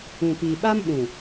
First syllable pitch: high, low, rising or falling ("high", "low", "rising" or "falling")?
low